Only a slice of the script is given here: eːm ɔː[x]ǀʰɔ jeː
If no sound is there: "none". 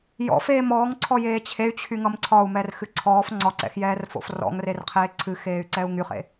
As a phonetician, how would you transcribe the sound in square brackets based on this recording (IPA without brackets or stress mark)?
ŋ